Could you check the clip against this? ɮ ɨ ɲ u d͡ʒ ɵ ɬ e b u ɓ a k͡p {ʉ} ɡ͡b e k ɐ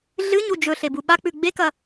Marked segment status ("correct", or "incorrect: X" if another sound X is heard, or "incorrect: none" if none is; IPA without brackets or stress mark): correct